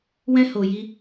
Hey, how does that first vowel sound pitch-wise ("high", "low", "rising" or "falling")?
high